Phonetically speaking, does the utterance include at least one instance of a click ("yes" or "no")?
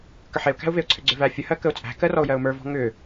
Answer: yes